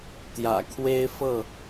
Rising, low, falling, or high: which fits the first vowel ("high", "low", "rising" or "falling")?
low